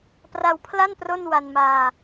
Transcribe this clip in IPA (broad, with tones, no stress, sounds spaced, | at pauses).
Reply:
p r a˧ w pʰ l a˥˩ n p r o˥˩ n w a˧ n m aː˧